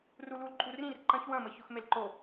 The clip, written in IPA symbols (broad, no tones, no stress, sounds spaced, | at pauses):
r u l u l ǃʼ u r ĩ r ǃ ɐ̃ ç w ɐ̃ m ə ç ʊ x m e l ǃ o